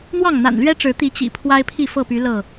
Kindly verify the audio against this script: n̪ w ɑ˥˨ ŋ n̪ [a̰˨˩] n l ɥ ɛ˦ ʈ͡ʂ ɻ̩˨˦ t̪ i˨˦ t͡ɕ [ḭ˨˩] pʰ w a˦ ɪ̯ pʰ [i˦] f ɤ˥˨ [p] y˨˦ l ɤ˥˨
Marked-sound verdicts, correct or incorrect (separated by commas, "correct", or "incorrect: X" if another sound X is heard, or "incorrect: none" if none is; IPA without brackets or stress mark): correct, correct, incorrect: i˥˨, correct